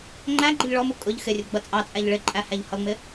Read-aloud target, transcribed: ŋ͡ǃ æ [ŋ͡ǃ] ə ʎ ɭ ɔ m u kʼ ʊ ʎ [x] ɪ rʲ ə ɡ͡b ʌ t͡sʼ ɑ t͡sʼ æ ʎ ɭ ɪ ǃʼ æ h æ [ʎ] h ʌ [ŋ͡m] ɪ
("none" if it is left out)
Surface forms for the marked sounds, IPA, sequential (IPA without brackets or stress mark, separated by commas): ɡ͡ǃ, x, ʎ, ŋ͡m